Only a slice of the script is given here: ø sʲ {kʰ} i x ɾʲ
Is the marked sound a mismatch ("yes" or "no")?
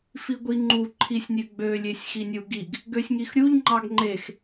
yes